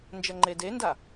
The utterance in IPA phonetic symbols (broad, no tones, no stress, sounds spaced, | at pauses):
n d͡ʒ ɐ ŋ͡ǃ e d e n d a